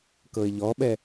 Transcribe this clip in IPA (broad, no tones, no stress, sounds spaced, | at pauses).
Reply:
k ɤ ɪ̯ ʎ ɔ ɓ ɛ